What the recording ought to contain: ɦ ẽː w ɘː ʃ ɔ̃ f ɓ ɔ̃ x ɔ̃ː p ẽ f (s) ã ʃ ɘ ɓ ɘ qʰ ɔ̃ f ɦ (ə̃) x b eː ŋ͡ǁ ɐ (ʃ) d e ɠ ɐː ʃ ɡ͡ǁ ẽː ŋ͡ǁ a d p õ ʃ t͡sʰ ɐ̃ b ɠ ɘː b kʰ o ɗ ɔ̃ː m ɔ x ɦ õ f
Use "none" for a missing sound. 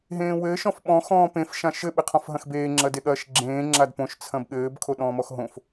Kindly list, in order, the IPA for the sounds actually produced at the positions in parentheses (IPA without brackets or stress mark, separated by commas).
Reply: ʃ, ɐ̃, none